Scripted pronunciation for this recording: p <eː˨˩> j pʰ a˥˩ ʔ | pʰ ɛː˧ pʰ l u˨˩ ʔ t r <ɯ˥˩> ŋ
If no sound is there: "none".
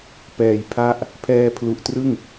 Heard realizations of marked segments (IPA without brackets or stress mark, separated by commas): ɛː˨˩, ɯ˥˩